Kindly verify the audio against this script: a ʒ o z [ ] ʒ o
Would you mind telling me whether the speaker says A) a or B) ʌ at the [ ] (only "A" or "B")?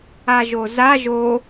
A